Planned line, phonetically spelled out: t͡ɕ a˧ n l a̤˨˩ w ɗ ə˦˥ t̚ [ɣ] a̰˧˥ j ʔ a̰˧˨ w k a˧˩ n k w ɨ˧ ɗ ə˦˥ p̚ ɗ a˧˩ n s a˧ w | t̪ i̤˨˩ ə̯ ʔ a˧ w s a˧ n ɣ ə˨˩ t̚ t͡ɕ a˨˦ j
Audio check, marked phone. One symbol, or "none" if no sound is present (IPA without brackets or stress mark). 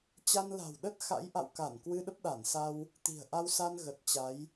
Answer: x